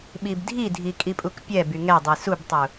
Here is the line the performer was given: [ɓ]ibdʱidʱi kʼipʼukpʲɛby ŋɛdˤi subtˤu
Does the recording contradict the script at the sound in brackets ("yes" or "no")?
no